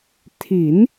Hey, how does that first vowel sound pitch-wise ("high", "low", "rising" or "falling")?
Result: rising